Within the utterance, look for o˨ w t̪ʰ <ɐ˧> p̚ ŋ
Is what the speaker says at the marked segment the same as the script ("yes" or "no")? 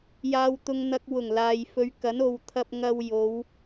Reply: yes